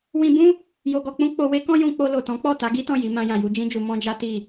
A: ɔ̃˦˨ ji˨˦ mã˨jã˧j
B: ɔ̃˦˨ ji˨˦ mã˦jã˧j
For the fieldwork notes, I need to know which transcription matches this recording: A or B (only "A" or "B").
B